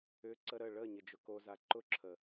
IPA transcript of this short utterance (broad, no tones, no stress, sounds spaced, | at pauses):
ʏ ǀ ə ɾ ə ɭ ə ɲ ɪ d͡ʒ ʊ k o z a ǃ ʊ ǁʰ ə